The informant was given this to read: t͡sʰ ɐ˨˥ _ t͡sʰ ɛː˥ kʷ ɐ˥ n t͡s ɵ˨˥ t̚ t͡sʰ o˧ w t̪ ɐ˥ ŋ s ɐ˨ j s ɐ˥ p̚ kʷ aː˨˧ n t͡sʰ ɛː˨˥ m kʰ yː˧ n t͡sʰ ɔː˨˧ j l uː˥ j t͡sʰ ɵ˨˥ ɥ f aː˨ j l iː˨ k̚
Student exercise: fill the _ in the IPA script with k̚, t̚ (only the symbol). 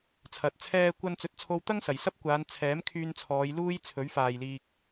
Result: t̚